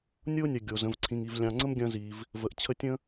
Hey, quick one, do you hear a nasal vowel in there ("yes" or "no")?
yes